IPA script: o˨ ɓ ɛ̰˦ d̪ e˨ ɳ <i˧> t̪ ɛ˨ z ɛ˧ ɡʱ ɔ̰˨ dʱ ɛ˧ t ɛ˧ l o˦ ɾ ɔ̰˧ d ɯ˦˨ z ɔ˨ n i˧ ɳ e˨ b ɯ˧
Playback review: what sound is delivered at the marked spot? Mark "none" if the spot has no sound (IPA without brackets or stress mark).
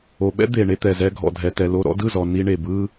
e˧